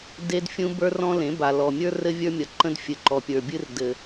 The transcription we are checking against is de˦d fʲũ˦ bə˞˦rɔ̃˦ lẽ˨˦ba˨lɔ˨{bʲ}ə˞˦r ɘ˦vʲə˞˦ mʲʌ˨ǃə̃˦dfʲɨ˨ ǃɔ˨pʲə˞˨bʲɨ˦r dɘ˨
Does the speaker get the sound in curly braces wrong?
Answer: yes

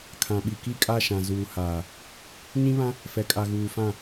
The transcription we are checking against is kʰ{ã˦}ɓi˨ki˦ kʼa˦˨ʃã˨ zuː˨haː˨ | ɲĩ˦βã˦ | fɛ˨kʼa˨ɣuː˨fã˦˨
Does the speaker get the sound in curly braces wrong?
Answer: yes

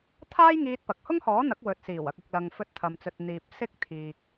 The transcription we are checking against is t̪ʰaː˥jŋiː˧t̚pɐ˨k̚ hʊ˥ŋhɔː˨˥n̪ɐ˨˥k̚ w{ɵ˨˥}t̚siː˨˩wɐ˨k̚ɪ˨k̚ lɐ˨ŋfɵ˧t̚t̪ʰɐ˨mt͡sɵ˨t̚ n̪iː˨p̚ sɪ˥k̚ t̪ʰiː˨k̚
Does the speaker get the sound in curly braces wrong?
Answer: yes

